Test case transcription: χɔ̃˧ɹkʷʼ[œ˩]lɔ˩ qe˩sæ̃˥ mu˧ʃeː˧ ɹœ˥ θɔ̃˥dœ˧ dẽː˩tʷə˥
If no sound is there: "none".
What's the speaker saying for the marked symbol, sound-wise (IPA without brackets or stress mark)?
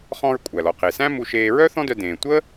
æ˩